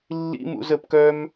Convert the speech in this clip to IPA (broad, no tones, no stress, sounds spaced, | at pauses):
lː ḭ m ṵ z ə p k œ m